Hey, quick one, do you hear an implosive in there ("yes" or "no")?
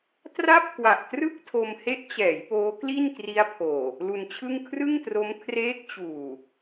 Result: no